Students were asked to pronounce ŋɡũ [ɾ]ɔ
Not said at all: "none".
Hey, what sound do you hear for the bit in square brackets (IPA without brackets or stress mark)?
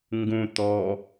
t̪